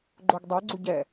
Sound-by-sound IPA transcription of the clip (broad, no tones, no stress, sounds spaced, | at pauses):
ɡ͡ǃ o ɡ dˤ ɛ ɡ͡ǀ u ɟ ɛ